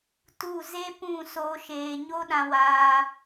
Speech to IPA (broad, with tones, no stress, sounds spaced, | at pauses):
t u˦˨ z e˦ p ũ˦˨ s oː˧ ʃ eː˨ ɲ o˦ ɗ ã˧ w aː˧